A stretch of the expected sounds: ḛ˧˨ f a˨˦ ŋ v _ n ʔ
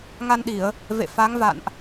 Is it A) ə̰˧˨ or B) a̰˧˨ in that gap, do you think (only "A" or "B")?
B